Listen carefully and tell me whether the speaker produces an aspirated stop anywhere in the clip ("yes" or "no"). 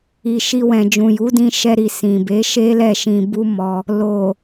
no